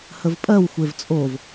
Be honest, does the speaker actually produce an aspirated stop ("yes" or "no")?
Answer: no